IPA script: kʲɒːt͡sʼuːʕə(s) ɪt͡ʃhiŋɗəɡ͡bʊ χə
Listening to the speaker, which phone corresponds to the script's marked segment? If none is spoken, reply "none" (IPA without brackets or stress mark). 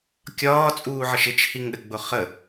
ʃ